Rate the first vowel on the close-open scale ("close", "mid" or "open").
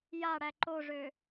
open